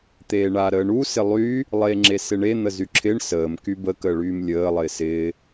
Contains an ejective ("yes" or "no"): no